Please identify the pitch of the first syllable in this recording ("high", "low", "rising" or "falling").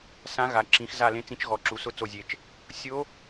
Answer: rising